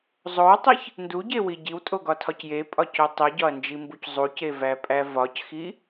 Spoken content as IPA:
zˤ o w tˤ i ç | n d u ɟ e w i ɟ i w tʼ o ɡ ɒ tʰ ɒ c j e pʼ ɒ c o tˤ i ɟ ɒ ɐ̯ n d͡ʒ i m b u c zˤ u c e v æ pʼ æ v ɒ c x i

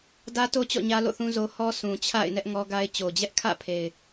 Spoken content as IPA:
d ä˦ t o˦ t͡ɕ ɔ̰˦˨ ɲ ä˦ l o̰˦˨ θ ũ˦ z o˦ h ɔ˦ s ũ˨ t͡ɕʰ a̰˦˨ ɪ̯ n ɛ˦ ʔ ŋ ɔ˦ ɡ a˦ ɪ̯ t͡ɕ o˨ d͡ʑ ɛ˦ ʔ kʰ ä̰˦˨ pʰ e˨ ɪ̯

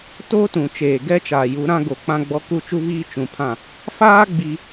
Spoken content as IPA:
t oː˦ t ũ˨ t͡ʃ eː˨ ɡ ɛ˦ t͡ʃ aː˨ j u˨˦ ɾ ã˦ ɡ o˨ k͡p ã˦ ɡ͡b ɔ˦ k u˦˨ t͡ʃ u˦ β iː˦ t͡ʃ ũ˨ pʰ ã˦˨ | f aː˦ ɡ͡b i˦

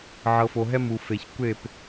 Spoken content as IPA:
ʕ ɤ˨ f o˨ ɦ ɛ˦ m u˨ f e˨ ç kʷ e˦˨ p

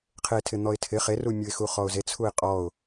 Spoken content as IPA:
qʰ e tʰ ɪ n̪ ɔ ɪ̯ tʰ ɪ χ e r u mʲ u ɪ̯ x u χ ɔ ʊ̯ z e t͡sʰ u ɪ̯ qʼ ɔ ʊ̯

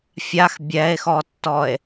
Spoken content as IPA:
fʲ a x bʲ ɛ e̯ x ɔ tː ɔ e̯

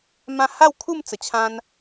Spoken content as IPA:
m ã˥˧ h a˥˧ w kʰ u˥˧ m t͡s ə˨˩ t͡ɕʰ ã˦ n

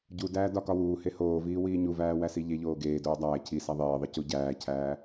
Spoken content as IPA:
ɟ u d æː d ɒ k ɒ w uː h e h oː v iː w iː ɲ u v æː w æ s i ʎ e ʎ oː ɡ eː d oː dˤ æː cʰ i s æ ðˤ eː ðˤ i c u ɟ æː cʰ æː

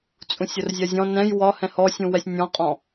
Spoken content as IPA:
t͡sʼ ũ sʲ ʊ r zʲ ɜ zʲ ɔ̃ n ɛ̃ j w ɒ h ɛ̃ h ɔ sʲ ũ w ɛ sʲ nʲ ɔ̃ qʼ ɔ̃

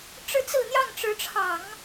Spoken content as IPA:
ʈ͡ʂ ɻ̩˥˧ t͡s ɹ̩˥˧ n̪ j ɑ˥˩ ŋ ʈ͡ʂ ɻ̩˧˥ ʈ͡ʂʰ ɑ˨˩˦ ŋ

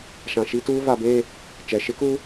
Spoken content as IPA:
ʃ ã˨ ʃ i˦ t uː˦ v a˨ b e˦˨ | t͡ʃ ɛ˨ ʃ ɪ˦ k u˦

